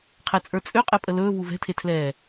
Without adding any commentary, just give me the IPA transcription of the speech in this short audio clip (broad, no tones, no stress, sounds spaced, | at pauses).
qʰ ɛ t͡sʼ ə˞ t͡sʼ ø qʼ ɛ pʼ ə l ɵː v u v ɛ̤ tʰ e tʰ l ɛː